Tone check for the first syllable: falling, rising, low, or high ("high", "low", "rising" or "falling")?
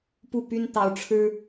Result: falling